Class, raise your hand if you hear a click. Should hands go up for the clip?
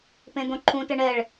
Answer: yes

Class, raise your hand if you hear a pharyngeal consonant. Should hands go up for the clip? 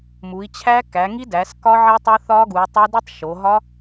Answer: yes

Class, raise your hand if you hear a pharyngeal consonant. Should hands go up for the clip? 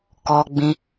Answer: no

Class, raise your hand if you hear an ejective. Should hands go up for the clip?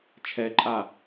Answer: yes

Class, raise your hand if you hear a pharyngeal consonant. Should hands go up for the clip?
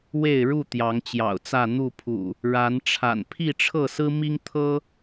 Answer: no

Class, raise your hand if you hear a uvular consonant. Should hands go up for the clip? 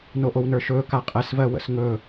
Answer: yes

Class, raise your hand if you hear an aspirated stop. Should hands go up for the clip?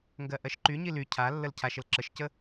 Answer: yes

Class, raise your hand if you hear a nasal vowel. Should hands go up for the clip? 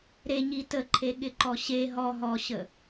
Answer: no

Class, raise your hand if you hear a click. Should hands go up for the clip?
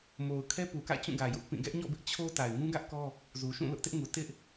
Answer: no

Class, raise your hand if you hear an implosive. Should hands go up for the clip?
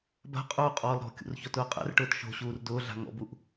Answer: no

